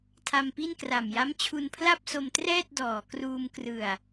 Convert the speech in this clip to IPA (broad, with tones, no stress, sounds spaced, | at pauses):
tʰ a˧ m p i˥˩ n k r a˨˩ m j a˦˥ m t͡ɕʰ u˧ n pʰ l a˥˩ p̚ s o˧ m t r ɛː˥˩ t̚ d ɔː˩˦ k r uː˧ m k r ɯ˨˩ a̯